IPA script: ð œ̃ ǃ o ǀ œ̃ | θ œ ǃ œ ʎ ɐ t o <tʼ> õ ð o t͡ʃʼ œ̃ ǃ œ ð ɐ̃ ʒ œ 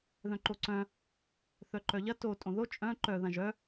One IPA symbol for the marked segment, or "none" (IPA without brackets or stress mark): tʼ